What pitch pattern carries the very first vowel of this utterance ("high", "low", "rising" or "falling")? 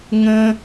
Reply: high